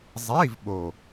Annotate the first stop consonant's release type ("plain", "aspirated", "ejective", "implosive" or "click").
implosive